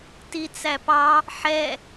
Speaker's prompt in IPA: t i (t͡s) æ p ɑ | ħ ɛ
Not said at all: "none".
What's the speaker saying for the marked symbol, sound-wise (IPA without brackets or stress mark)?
t͡s